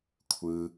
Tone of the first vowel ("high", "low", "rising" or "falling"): low